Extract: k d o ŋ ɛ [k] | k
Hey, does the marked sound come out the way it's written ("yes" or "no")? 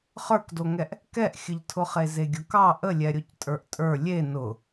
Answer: no